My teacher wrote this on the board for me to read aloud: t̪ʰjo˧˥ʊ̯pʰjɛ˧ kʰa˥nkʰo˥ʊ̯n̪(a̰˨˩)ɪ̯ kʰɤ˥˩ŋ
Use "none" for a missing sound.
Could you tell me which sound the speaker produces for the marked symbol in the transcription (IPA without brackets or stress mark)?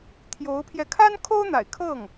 a̰˨˩